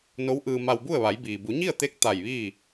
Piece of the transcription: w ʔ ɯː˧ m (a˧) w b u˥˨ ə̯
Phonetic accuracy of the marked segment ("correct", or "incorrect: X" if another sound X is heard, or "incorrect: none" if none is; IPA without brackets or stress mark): correct